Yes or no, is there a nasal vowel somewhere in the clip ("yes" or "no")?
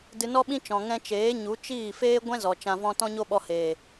yes